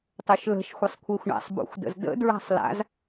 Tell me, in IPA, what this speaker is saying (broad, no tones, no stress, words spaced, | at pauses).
tˤøʃlə̤ʃ xʷəsˤkʷʰəːxʷɳa̰sˤ bo̰xʷdə̰zdə̰ dɹa̤sˤla̰z